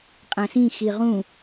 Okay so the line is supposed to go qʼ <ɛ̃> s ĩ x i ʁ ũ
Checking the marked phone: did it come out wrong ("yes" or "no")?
yes